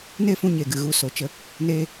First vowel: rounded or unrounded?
unrounded